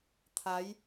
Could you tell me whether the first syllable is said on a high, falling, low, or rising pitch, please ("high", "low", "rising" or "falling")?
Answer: rising